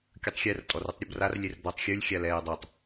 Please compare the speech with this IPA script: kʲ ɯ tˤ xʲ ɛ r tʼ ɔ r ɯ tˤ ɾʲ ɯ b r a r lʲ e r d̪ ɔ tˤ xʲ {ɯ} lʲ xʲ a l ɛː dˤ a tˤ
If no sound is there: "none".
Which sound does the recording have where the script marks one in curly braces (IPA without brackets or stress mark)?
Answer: ɯ